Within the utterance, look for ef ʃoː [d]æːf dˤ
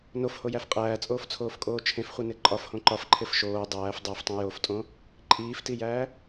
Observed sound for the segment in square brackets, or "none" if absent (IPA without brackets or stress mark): dˤ